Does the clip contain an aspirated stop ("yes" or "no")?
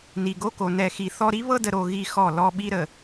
no